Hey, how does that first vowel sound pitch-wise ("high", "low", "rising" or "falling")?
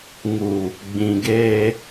low